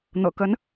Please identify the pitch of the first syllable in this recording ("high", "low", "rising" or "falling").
low